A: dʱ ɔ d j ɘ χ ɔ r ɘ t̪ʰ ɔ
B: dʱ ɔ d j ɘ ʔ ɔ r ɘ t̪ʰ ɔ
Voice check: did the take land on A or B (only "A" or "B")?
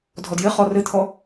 A